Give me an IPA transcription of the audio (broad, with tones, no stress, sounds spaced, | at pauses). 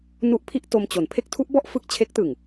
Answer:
n u˦˥ ʔ pʰ i˥˩ ʔ t o˧ m t͡ɕ o˩˦ n pʰ e˦˥ k̚ tʰ u˦˥ ʔ b ɔ˥˩ ʔ f ɯ˥˩ k̚ t͡ɕʰ e˦˥ k̚ t ɯ˨˩ ŋ